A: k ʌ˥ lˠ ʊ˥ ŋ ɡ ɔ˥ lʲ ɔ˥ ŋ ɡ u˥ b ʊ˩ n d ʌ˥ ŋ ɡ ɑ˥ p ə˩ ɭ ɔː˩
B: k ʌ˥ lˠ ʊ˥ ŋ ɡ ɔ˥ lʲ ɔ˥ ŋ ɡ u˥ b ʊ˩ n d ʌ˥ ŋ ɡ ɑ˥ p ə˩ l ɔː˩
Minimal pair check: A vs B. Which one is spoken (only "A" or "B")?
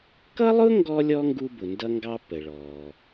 A